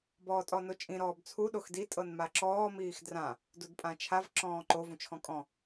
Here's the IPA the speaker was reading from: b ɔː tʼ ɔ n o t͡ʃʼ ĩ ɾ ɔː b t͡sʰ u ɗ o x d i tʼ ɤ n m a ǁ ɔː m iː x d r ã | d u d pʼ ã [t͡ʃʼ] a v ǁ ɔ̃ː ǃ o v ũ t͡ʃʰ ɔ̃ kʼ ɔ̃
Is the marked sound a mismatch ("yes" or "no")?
yes